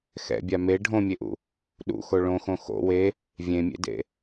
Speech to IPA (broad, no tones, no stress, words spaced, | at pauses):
xɛ̰bʲa me ɖʱõmʲeʔṵ | ɗṵxo ɭõxõ xo̰ we | vʲẽmʲḛdḛ